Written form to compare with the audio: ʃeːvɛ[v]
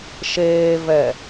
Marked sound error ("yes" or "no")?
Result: yes